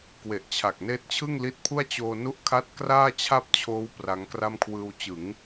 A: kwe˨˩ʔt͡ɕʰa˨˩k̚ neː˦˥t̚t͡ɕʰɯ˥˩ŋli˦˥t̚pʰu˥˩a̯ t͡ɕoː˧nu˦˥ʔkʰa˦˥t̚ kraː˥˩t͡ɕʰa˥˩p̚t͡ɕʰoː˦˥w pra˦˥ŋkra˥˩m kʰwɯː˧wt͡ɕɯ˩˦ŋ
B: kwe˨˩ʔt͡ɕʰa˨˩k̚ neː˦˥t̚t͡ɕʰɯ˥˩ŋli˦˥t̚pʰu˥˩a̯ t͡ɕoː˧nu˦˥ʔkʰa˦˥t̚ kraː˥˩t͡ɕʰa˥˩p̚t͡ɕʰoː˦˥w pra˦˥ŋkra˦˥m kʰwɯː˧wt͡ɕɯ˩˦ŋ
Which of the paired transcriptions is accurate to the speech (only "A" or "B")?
A